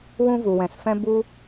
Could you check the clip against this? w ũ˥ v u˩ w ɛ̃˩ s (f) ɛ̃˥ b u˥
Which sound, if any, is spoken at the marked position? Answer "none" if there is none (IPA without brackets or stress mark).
f